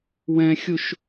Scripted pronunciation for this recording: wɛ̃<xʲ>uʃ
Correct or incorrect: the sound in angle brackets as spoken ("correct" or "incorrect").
correct